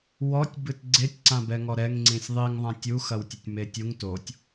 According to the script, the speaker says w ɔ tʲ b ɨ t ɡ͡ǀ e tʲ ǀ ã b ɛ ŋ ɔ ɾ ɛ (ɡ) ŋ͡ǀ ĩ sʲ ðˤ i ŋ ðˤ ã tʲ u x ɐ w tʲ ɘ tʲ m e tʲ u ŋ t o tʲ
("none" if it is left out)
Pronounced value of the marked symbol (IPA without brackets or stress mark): ŋ